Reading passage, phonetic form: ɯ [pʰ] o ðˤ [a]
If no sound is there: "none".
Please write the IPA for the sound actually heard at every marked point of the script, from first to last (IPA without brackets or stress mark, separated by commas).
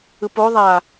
p, a